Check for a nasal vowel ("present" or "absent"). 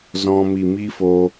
present